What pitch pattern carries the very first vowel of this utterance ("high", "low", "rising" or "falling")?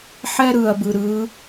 high